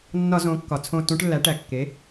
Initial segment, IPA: nː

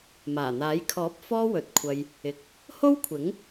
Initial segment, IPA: m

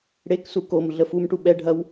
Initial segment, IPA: ɽ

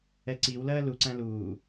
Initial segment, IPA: ɛ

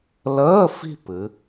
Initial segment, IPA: l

